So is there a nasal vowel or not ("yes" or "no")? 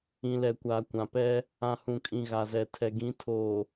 yes